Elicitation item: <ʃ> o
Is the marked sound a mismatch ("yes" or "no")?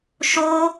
no